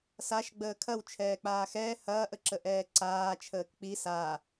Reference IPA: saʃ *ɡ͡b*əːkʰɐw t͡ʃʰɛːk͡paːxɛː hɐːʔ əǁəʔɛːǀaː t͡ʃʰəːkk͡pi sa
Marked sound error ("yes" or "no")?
no